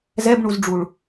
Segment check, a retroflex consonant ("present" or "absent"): present